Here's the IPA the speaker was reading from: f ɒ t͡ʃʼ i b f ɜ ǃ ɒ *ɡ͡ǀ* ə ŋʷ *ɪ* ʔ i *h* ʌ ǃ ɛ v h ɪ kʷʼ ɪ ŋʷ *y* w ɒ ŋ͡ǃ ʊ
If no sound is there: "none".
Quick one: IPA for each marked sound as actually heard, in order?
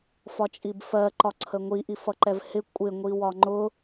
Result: ǀʰ, i, f, i

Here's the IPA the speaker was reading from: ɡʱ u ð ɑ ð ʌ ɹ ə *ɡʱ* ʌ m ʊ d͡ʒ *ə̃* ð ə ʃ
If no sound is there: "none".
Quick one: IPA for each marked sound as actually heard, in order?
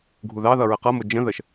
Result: q, ə̃

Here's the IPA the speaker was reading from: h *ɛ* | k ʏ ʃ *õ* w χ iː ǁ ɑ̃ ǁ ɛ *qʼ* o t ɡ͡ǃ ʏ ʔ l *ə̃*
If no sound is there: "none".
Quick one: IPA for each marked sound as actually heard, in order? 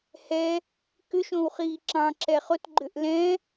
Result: ɛ, õ, χ, ɛ̃

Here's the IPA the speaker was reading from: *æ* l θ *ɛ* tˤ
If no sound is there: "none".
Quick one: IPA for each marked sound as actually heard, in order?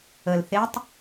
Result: ə, e

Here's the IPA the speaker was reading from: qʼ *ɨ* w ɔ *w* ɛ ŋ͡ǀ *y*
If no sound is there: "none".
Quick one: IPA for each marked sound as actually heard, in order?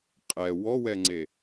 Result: ɛ, w, e

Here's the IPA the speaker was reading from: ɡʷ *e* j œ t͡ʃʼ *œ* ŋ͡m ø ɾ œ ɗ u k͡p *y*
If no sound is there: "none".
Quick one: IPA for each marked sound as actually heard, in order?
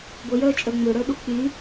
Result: ɛ, œ, y

